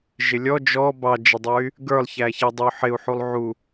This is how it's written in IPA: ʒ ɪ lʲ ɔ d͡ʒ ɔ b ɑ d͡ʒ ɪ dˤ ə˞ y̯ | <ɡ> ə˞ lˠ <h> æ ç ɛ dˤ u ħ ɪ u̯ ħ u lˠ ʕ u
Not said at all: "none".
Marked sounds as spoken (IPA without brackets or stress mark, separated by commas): ɡ, ç